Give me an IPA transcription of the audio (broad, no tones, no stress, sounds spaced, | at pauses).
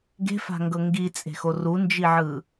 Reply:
ɡ e̤ f a̤ ŋ ɡ ɤ ŋ ɡ i t͡sʼ e̤ x o r u n d͡ʒ i ʕ ɯ